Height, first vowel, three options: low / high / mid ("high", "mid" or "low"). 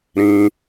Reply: high